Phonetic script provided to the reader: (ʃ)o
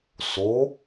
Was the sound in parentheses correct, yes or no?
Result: no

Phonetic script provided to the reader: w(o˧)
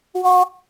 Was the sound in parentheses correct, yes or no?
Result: no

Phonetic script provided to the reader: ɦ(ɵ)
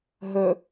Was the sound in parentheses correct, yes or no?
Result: yes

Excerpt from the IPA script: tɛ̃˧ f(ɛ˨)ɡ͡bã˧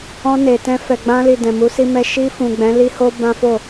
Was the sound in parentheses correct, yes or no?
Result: yes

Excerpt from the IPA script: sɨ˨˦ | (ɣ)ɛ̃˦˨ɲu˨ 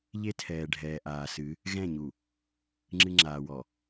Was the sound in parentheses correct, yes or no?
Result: yes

